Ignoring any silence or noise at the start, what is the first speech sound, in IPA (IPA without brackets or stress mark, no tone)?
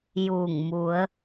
j